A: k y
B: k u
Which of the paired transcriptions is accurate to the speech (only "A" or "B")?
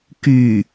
A